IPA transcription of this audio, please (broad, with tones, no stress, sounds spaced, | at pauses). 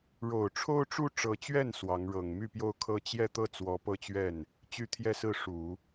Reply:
ɻ o˨˩ ʊ̯ ʈ͡ʂʰ o˥ ʊ̯ ʈ͡ʂ u˥ ʈ͡ʂ ɤ˧˥ t͡ɕ ɥ ɛ˥˩ n s w ɑ˧˥ ŋ ɻ ɤ˨˩ ŋ m y˥˧ p j o˥˩ ʊ̯ kʰ ɤ˥ t͡ɕ j ɛ˥˧ t̪ ɤ˥˩ t͡s w ɔ˧˥ p ɤ˥˧ t͡ɕ ɥ ɛ˥˩ n | t͡ɕ y˥ t̪ʰ j ɛ˥˧ s ɹ̩˥˩ ʂ u˨˩˦